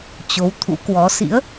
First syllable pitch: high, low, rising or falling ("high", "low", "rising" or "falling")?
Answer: rising